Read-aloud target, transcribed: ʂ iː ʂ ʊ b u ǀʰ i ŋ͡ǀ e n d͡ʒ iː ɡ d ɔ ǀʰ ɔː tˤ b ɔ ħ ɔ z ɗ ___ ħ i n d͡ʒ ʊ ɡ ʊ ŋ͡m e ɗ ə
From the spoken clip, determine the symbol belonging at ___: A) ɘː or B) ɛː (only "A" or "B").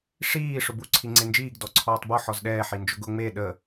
B